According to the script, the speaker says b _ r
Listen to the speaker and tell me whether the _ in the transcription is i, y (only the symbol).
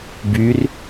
y